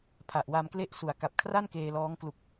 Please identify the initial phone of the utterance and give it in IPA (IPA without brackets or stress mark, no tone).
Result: pʰ